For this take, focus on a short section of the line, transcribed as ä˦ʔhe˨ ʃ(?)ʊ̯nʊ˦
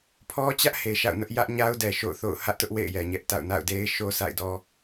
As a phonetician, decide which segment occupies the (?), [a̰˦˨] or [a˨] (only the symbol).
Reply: a̰˦˨